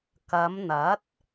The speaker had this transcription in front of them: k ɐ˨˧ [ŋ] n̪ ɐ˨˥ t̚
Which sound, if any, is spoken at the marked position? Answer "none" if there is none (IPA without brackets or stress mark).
m